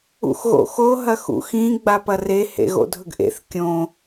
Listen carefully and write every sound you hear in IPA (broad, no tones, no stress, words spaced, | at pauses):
ṵxɣo̰xo ɦɐxṵxĩ ɡ͡bapɐre hḛɣo̰dʱɵɡʔḛθ kʲõ